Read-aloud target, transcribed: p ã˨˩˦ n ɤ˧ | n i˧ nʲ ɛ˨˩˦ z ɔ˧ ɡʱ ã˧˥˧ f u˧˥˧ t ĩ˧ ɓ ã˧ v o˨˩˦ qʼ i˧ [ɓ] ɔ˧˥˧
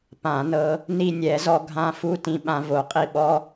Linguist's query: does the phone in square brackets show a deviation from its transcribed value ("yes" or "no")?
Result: no